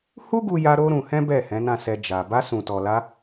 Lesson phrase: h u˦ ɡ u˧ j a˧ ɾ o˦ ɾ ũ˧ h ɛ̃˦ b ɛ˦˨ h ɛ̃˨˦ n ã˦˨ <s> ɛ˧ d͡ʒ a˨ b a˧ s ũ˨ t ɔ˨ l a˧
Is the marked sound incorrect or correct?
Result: correct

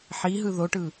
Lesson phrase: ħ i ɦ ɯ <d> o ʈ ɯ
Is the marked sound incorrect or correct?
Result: incorrect: ð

